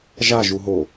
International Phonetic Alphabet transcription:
ʒ a ʒ u ɦ o

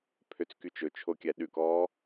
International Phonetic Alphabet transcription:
pʰ ø t͡s k y t͡ʃ ɵ t͡ʃʰ o kʲ æ ɗ ʉ k ɔː

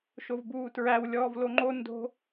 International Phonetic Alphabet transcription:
ʃ o v b uː t ɹ æ w lʲ ɔː v l o ŋ͡ǃ o n d o̤

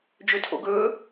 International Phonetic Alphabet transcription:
d͡ʒ ø tʰ o̰ ɡ ɵː

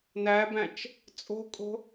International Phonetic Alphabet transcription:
n æ b æ̃ t͡ʃ | t͡sʼ o̤ kʼ o̤

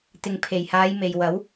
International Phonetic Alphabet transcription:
t̪ ɪ˨ ŋ pʰ e˨˩ j h aː˨˧ j m e˨ j w ɐ˨˥ w

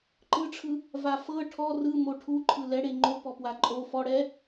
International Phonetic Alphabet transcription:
ǃ ɯ ʈ͡ʂʰ ɯ | v a f ɤ ʈʰ ɔ r ɯ m o ʈʰ u ǃʰ ɯ l ɛ ɽ e ŋ͡ǃ o p ɔ p w a ǃʼ o f ɔ ɽ ɛ

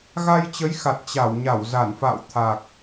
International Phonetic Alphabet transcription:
ɣ a˧ j t͡ɕ ə˨˦ j x a˨˩ t̚ t͡ɕ a˧˩ w ɲ a˧˩ w z a˧˩ n f a̰˧˨ w t̪ʰ a˨˩ k̚

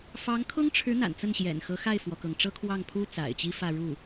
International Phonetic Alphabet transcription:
f ɑ˧˥ ŋ kʰ ʊ˥ ŋ ʈ͡ʂʰ ɻ̩˧˥ n̪ a̰˨˩ n t͡s ə˥˩ n ɕ j ɛ̰˨˩ n x ɤ˧˥ x a˥˩ ɪ̯ f w ɔ˩ k ɤ˩ ŋ ʈ͡ʂ ɤ˥ kʰ w ɑ˥˩ ŋ pʰ u˥ t͡s a̰˨˩ ɪ̯ t͡ɕ i˥ f ä˥˧ ɻ u˥˩

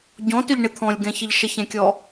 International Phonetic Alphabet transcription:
ɟ ɔ̃ t ʏ ʎ ɳ ɪ t̪ʰ ɔ̃ lʲ ɡ ɛ̃ ç ə ʎ ʃ ə ç ɛ̃ kʲ ɔ

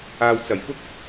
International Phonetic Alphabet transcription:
aː˨ w t͡s ɐ˨˩ j f ʊ˥ k̚

